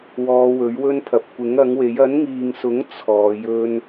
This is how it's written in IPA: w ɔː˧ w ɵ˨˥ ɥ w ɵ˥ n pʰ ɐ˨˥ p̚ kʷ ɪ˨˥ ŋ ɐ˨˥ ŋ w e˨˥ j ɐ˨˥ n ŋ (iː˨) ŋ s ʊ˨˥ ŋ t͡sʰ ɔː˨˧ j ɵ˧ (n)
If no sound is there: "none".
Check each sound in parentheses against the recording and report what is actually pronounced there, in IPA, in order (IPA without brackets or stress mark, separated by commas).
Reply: iː˨, n